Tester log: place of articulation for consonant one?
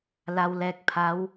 alveolar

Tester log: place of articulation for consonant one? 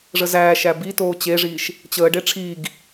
retroflex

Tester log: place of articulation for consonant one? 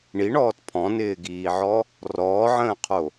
retroflex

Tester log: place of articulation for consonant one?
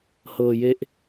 glottal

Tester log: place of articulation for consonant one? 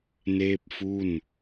alveolar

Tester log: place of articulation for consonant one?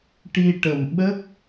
retroflex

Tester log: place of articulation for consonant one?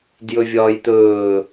alveolar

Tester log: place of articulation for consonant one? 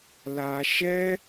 alveolar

